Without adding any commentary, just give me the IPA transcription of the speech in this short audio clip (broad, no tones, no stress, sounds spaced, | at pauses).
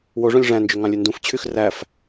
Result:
w o ʐ õ lʲ ʐ æ̃ n d͡ʒ ø ŋ ɑ̃ lʲ ø n d ũ f t͡ɕʰ y x r æ f